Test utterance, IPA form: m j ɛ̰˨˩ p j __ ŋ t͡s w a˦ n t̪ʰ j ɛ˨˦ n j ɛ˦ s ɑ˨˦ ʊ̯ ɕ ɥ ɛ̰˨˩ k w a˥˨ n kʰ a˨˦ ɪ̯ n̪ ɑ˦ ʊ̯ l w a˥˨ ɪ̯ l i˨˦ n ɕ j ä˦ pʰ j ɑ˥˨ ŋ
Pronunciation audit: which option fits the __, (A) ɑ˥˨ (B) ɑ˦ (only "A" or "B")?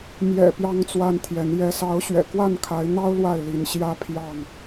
B